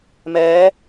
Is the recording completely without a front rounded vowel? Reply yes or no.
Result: yes